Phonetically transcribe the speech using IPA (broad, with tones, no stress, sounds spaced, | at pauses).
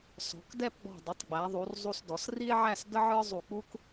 s ɔ̤˩˧ k d ɛ˥˧ p ɡ͡b ɔ̤˧˩ dˤ ə˩˧ tˤ ɡ͡b æ˩˧ ðˤ u˩˧ r zˤ u˧ s d ɔ˩˧ s r i˥ e̯ ʕ æ˥˧ s d ə˥ ʕ ə˞˥ zˤ u˧˩ k͡p u˥ k